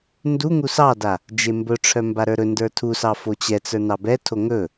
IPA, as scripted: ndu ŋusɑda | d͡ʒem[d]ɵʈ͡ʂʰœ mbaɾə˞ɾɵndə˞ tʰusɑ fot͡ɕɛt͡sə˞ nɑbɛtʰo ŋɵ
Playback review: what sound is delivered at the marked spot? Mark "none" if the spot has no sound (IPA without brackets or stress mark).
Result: b